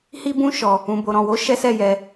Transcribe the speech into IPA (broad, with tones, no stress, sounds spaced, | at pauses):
h i˦ b ũ˦ ʃ ɔ˧ | ũ˧ b o˧ ɾ ɔ̃˧ w o˦ ʃ ɛ˦ s ɛ˦˨ j ɛ˧